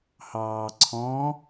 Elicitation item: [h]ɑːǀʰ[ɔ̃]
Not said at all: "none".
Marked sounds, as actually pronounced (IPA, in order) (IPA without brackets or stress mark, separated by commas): h, ɔ̃